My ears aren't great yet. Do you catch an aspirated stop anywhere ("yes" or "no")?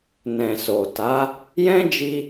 no